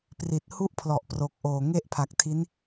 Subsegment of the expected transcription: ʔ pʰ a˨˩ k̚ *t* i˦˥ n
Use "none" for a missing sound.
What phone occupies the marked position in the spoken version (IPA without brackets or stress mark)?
tʰ